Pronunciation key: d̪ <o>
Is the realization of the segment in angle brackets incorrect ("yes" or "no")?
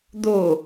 no